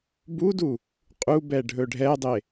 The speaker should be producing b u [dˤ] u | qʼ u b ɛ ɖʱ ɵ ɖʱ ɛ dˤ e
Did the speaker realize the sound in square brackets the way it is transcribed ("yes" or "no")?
no